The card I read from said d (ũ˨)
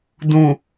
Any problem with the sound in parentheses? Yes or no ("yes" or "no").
no